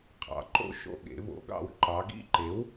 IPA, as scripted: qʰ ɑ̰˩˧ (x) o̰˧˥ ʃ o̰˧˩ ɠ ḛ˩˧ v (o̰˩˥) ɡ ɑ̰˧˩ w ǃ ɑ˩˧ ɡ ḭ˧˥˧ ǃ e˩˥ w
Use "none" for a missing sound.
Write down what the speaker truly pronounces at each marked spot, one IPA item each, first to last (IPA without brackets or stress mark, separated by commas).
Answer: ǃ, o̰˩˥